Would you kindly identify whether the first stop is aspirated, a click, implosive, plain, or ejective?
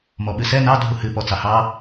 implosive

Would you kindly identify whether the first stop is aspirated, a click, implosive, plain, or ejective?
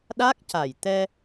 implosive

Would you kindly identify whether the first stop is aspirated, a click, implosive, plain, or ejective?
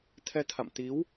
aspirated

